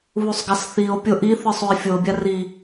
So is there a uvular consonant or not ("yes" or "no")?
no